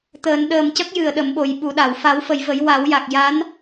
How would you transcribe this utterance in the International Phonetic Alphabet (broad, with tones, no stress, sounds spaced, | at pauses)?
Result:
t̪ əː˨˩˦ n ɗ əː˨˩ m c ə˦˥ k̚ j ɨ˨˩˨ ə̯ ɗ ə˨˩˦ m ɓ o˨˩˦ j ɓ u˨˩˦ ɗ a˨˩˨ w f a˨˩˦ w f ə˨˩˨ j v ə˨˩˦ j w a˨˩˦ w j a˨˩ k̚ j a˧˥ n